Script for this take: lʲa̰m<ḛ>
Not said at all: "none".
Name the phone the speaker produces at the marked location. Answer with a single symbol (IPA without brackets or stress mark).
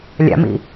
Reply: ḭ